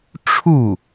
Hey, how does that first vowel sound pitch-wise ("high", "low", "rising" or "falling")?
falling